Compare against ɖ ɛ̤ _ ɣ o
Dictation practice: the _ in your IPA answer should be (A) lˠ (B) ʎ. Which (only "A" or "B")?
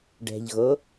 B